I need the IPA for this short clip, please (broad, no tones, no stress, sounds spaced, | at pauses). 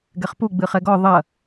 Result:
ɡ ɛ χ p u ɡ͡b ɨ χ ɛ ɡ ɔ ðˤ ɐ